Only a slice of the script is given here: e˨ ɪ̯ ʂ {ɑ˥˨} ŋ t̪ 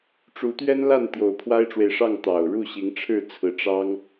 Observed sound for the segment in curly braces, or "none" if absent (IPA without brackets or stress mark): ɑ˥˨